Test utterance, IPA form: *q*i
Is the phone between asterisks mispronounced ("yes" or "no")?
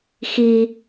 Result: yes